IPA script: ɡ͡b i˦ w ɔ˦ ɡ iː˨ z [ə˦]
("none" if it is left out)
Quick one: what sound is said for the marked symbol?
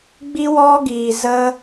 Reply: ə˦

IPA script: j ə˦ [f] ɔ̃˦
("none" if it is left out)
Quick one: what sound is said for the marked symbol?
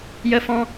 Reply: f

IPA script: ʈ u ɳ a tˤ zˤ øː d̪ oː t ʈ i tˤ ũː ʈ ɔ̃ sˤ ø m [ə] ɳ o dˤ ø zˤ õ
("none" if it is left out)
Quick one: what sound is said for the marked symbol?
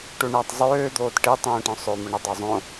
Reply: ə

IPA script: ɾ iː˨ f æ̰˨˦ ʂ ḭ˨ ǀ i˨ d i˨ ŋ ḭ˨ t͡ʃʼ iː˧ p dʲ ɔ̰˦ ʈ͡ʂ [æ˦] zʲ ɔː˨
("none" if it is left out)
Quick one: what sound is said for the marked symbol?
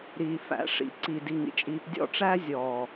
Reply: æ˦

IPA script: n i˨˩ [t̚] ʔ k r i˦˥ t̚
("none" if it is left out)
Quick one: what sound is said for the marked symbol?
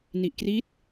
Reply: none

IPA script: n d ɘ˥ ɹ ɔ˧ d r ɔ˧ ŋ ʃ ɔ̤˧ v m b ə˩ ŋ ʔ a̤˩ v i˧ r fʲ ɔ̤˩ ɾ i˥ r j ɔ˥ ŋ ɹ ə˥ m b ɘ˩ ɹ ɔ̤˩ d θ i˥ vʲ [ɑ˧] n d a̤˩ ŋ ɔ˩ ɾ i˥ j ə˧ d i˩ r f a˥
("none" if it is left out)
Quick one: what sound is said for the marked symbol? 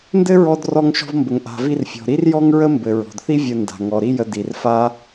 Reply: ə˧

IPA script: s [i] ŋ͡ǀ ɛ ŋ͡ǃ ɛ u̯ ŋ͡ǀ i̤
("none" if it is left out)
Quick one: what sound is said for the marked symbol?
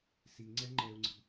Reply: i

